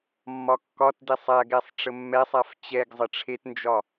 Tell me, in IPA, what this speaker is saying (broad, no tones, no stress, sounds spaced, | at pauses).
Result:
mː ɒ kː ɒ t d e sˤ a ɡ ɛ sˤ ʈ͡ʂ ə mː ɛ sˤ a f t͡ɕ ɛ ɡ zˤ ə ʈ͡ʂʰ e t n d͡ʒ ɒ